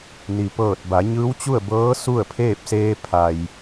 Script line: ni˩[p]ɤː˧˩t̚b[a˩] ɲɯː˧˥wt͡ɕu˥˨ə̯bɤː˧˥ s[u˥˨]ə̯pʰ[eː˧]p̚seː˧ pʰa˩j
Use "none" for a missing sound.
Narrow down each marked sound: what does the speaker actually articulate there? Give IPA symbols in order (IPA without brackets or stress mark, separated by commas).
p, a˩˧, u˥˨, eː˥˨